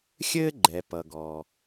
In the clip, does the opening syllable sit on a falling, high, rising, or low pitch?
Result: high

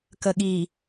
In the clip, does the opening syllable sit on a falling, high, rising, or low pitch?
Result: low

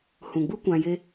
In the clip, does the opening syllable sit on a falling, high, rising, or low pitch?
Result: low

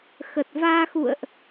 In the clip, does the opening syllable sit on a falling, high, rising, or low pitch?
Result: low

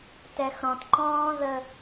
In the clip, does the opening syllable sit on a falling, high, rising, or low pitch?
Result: low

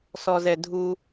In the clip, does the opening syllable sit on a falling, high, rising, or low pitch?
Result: low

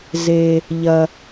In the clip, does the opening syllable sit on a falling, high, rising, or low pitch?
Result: low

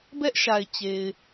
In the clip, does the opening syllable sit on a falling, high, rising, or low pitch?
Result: high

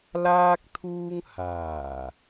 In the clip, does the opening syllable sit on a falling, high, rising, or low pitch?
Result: high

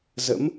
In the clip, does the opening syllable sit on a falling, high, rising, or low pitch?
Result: rising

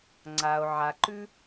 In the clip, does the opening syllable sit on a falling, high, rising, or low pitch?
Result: low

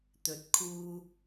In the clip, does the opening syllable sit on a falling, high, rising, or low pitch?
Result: rising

